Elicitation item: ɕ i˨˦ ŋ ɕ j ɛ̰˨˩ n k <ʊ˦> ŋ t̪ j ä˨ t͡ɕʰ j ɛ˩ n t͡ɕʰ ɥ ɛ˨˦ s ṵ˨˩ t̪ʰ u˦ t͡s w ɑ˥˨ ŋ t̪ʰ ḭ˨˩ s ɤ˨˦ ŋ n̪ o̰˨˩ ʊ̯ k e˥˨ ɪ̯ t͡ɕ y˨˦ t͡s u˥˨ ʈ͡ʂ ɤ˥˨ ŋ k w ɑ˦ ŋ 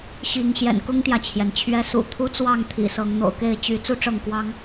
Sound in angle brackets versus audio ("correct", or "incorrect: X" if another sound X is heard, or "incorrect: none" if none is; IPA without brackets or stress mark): correct